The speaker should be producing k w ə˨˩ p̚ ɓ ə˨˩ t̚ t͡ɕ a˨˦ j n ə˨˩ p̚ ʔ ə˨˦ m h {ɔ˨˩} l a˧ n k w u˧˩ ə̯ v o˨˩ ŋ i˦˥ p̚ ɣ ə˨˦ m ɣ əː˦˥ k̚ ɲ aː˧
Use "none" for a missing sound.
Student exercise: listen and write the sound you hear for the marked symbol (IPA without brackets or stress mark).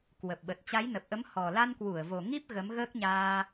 ɔ˨˩